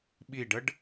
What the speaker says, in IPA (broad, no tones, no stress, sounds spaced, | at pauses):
ɓ i ɖ ə ɖ